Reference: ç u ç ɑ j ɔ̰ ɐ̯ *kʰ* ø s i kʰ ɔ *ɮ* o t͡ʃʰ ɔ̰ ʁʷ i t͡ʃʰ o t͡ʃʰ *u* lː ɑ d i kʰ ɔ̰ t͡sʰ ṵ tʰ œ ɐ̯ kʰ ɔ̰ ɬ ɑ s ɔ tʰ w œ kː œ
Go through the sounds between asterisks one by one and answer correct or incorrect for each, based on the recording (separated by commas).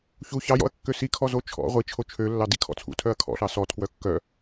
incorrect, incorrect, incorrect